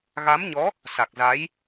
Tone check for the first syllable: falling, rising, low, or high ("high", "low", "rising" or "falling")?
rising